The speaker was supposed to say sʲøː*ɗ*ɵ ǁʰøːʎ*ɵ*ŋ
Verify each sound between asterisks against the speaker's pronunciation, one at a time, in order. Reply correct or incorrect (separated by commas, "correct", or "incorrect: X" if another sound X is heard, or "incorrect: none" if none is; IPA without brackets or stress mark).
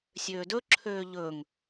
incorrect: d, correct